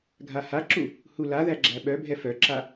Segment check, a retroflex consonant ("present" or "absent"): absent